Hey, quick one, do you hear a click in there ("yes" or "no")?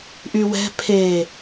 no